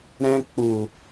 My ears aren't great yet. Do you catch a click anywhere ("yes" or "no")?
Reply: no